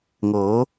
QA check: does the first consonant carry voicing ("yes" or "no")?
yes